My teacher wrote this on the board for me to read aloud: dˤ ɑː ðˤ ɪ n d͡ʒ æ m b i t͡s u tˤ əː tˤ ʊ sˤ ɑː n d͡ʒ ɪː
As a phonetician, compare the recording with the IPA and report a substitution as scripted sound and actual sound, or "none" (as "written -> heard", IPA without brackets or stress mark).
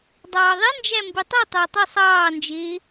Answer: t͡s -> tˤ